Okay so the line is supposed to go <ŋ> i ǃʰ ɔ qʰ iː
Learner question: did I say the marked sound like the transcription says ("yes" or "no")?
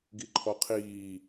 no